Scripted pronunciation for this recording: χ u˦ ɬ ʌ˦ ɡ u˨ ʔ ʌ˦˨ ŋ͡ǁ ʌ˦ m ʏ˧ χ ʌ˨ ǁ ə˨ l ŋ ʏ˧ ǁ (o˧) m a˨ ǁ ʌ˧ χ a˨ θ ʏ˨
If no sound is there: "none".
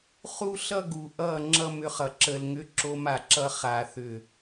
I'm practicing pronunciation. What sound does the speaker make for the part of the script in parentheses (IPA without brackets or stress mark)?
o˧